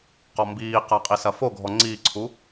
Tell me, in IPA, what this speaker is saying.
q ɔ m b iː q a qʼ i s ɐ f o ɡʱ ɔ ŋ͡ǀ iː ǀʰ u

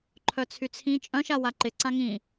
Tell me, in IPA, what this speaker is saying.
ǃʰ œ t͡sʰ y t͡sʰ ĩ t͡ʃʼ œ̃ ʃ a w a ǃ ɪ ǀ ã ŋ ĩ

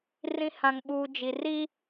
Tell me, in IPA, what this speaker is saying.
r ĩ˨ h ã˨ ŋ ɓ uː˨ d͡ʒ i˨ r i˦

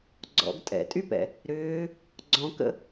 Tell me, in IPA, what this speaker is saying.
ɡ͡ǀ ɔ̰ ɡ tʼ ɛ̰ tʼ y p ɛ̰ | ɾ ʏː | ɡ͡ǀ ɔ̃ k ə̰

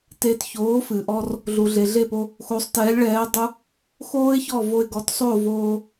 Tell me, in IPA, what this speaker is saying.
t e˧ t ç oː˩˥ f ɨ˩ ʔ ɔ˧ r | ɮ u˩ ɮ e˩ ɮ e˥˩ p o˧ | x o˩˥ sˤ t ɛː˩˥ lʲ ɭ ɛː˩˥ dˤ u˧ | x oː˥ ɪ̯ ç ɔ˥˩ v o˧ ɪ̯ ɡ ɔ˩˥ t sˤ o˥˩ v oː˧

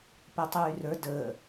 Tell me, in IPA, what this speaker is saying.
p əː tˤ yː r ə˞ d əː

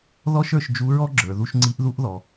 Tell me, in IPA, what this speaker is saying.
ð ɔ˥ ʃ ə˞˧ ʃ d͡ʒ u˧˥ ɹ ɔ˥ ɡ͡ǁ ə˞˩˧ ð u˥ ʃ ŋ͡ǀ i˧˥ ʔ ð u˥ ʔ ð ɔ˩˧

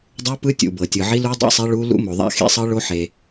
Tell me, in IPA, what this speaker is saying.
dˤ u˦˥ p ɯ˦˥ tʲ ṵ˩ b ɤ˩ tʲ ɯ˩ ʕ i˦˥ l u˦˥ dˤ ḭ˦˥ sˤ e˦˥ ɭ u˦˥ l ṵ˦˥ m o˩ ðˤ a̰˦˥ x ḭ˦˥ sˤ ɯ˦˥ ɭ o˦˥ ħ e˩

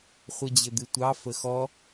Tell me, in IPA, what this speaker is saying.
χʷ ɤ d͡ʑ ɘ d̪ ɨ tʷ ɑ f ə x ɔ

